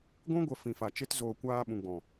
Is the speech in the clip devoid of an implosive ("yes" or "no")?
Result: no